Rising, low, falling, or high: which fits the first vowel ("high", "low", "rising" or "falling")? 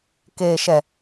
low